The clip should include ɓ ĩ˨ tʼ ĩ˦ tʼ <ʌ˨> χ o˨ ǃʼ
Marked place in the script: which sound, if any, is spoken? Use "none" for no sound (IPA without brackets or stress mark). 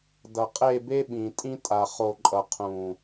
a˨